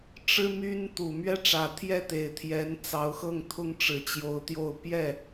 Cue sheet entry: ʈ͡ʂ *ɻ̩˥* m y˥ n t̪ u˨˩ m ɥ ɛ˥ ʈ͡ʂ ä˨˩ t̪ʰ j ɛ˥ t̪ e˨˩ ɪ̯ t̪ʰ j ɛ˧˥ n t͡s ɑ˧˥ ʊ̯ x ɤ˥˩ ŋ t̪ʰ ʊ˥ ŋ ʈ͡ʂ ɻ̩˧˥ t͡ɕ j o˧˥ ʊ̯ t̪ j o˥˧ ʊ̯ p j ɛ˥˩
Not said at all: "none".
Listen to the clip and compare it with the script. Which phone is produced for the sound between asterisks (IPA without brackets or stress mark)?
ɻ̩˥